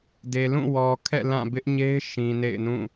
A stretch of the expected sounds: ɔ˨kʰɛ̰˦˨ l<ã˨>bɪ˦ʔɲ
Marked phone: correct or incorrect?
incorrect